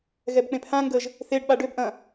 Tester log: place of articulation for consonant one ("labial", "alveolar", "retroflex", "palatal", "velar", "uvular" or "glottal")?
velar